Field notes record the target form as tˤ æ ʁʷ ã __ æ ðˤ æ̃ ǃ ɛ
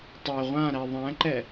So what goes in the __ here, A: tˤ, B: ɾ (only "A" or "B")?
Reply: B